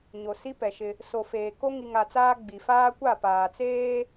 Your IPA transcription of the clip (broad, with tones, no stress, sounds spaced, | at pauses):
ɲ o˨ s i˦ p ɛ˨ ʃ ɪ˦ | s o˨ f eː˨ k o˦ ŋ i˨ ŋ a˨ t͡s aː˦ ɡ͡b i˨ f aː˦ kʷ a˦˨ p aː˨ t͡s eː˦